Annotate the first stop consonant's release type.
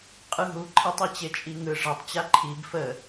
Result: ejective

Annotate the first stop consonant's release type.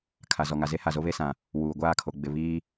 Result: aspirated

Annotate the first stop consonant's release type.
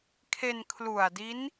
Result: aspirated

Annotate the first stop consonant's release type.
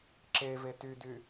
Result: click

